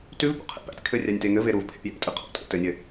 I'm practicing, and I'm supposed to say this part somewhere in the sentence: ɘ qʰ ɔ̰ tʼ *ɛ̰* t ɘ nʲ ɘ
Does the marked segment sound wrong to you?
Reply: yes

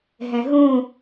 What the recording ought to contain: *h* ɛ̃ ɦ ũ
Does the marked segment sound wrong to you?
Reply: yes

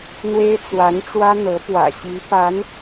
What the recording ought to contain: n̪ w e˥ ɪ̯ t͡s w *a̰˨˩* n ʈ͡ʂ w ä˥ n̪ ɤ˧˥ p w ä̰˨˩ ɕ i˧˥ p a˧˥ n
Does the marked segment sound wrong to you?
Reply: yes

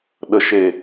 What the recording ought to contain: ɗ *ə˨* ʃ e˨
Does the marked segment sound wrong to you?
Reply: no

